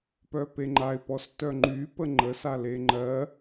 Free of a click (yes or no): no